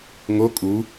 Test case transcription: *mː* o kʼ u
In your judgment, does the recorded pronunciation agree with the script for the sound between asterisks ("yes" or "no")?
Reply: no